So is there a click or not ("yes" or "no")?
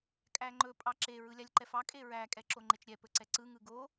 yes